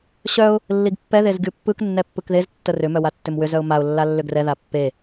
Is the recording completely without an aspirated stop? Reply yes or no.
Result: yes